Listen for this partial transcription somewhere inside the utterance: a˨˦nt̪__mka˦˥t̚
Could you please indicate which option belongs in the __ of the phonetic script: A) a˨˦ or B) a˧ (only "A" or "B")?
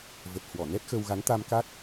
B